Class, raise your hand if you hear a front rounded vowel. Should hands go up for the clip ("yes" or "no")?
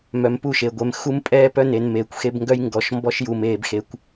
yes